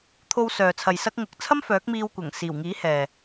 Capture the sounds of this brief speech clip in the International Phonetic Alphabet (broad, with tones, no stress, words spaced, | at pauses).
t̪ʰo˧wsœː˨t͡sʰɐ˨j sɐ˥k̚ŋʊ˧k̚ t͡sʰɐ˥mfœː˨˥k̚miː˧wkʷɐ˨˩ŋ siː˨˩wŋiː˨˥hɛː˨